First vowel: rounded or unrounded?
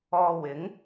rounded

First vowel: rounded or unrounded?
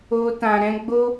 rounded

